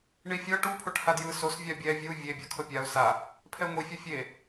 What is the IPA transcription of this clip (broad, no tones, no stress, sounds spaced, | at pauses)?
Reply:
ɳ i fʲ ɤ ʈ u pʰ o ʈ h a d j ɯ s o s vʲ a bʲ ɛ vʲ u vʲ e bʲ ɤ kʰ ɤ pʲ a ʊ̯ s a | pʰ ɛ ŋʷ i fʲ ɤ fʲ e